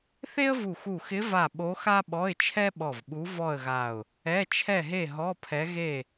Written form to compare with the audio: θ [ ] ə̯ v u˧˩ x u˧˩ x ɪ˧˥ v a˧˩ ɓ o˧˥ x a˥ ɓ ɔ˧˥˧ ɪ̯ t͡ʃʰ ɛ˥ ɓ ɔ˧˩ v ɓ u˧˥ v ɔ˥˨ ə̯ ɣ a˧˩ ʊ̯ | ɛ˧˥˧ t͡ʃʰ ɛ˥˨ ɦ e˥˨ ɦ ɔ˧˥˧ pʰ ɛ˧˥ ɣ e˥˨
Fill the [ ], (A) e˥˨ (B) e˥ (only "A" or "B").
B